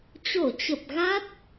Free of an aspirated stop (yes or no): yes